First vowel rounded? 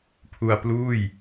yes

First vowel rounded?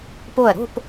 yes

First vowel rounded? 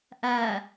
no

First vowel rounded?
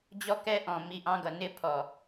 yes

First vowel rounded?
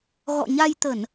yes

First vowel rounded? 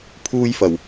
yes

